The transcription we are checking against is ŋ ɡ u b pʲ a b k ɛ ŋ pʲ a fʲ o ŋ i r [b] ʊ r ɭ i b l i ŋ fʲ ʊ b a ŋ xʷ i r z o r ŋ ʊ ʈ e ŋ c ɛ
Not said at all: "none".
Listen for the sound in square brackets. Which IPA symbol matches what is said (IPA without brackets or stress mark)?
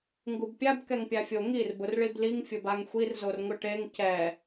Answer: b